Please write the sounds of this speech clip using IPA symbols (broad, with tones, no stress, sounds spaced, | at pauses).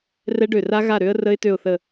r ɛ˦˥ ɖ ø˧˩ r a˦˥ ɣ a˥˨ ɾ ø˦˥ ə̯ r ə˦˥ ɪ̯ t ø˥˨ ʊ̯ θ ə˥˨